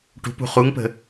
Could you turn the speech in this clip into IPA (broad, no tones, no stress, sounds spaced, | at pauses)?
ʈ ṳ p ṳ χ u ŋ p ə̤